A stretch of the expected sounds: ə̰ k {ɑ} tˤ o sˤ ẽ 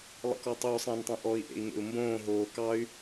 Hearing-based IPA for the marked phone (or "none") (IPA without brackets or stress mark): ɔ